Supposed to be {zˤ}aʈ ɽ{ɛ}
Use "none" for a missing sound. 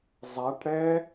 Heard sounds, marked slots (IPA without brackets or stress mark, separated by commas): zˤ, ɛ